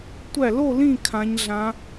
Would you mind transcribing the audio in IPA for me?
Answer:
tʷ æ˥˧ l o˥˧ l ĩ˥˧ kʰ ã˦˥ ɲ ɮ ã˦˥

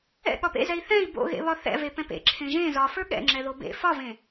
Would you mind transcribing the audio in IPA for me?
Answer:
ɛ̰ ɠ ɒ p ḛ z ɛ i̯ θ ɛ̃ i̯ b o̰ ɣ ḛ β ɒ θ ɛ̰ v e p ɛ̃ p ḛ ǁʰ ẽ ʒ ẽ z ɒ f ə˞ ɠ ɛ̰ ŋ͡ǁ ɛ ð o b ḛ f ɒ v ẽ

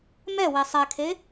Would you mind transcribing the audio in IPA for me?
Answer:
m ɛ w e sˤ ɛ kʰ e

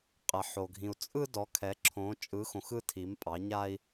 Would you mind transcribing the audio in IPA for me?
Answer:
qʼ ɛ˧ ħ o˧ ɡʱ ĩ˧ u̯ t͡sʼ ɯ˥ d ɔ˧˥ kʰ ɛ˧˥ ǁʰ õ˧˥ t͡ʃʼ ɯ˧˥ x õ˧ x ɯ˥ tʰ i˧˥ m pʼ ɑ˧˥ ɲ a˥ i̯

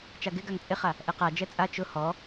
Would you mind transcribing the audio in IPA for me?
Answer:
t͡ʃ a ɡ ɪ ɡ a ŋ t͡sʼ ɪ χ a | ʔ ɛ q a d͡ʒ ɛ t͡sʼ a t͡ʃ ʊ h ɔ

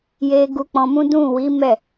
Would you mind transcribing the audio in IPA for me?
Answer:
j e˧ ɡ u˧ k͡p ɔ̃˧ m ũ˦ d ũ˦˨ w i˨˦ m ɛ˦˨

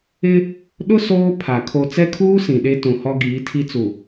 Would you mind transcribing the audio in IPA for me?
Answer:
ɪ˦ | ɗ ʊ˦ s oː˦ pʰ a˨ kʰ o˨ t͡s ɛ˦ kʰ uː˦ s ĩ˨ ɗ e˦ t ũ˨ h ɔ˦ ɡ iː˨˦ tʰ i˦ t͡s u˨

